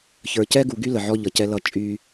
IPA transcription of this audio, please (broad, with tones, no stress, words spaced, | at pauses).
çə˞˨cɛ˦ɡu˨ɡy˦ lə˨ʕɔ˦ʎʌ˨cɛ˦ lʌ˦ t͡ʃʼy˦